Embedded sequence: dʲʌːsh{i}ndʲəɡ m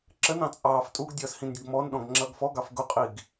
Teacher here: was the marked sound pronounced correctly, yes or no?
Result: no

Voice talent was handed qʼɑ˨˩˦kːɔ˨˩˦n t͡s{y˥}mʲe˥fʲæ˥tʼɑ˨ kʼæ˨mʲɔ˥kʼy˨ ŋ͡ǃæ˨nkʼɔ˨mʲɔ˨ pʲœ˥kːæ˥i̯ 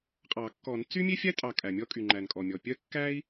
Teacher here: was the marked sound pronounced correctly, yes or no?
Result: yes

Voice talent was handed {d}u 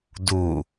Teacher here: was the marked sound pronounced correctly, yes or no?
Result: yes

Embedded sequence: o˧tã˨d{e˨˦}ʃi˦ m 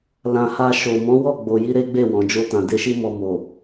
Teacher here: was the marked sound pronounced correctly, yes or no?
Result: no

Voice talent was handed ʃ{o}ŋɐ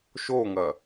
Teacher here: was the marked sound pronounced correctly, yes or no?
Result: yes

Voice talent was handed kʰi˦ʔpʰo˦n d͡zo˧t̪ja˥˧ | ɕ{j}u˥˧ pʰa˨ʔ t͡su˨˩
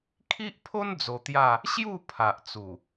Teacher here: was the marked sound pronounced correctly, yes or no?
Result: yes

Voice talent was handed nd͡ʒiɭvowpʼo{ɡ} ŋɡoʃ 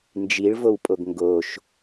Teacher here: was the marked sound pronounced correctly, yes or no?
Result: yes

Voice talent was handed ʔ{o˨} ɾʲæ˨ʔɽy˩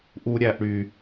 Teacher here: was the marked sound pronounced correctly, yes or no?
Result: no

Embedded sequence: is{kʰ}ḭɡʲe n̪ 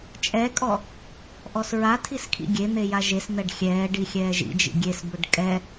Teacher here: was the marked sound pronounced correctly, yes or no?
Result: yes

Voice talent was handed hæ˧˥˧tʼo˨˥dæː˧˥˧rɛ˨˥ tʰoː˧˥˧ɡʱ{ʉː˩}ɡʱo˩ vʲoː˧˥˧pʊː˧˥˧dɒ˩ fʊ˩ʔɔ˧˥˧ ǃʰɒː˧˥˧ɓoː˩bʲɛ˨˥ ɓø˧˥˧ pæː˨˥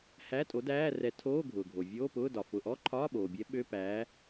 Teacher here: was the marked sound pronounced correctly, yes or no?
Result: no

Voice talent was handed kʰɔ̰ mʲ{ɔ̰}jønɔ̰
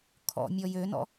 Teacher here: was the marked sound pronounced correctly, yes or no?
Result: no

